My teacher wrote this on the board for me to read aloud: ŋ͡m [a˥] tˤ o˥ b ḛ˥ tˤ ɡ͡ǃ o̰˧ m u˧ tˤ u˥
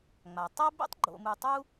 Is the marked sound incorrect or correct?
incorrect